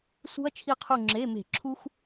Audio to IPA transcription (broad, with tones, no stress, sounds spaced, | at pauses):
s ṳ˧ ɐ̯ t͡ʃʰ i˧˩ qʰ u˧˩ ŋ͡ǁ e˩˧˩ m e̤˧˩˧ ǁʰ u˧ x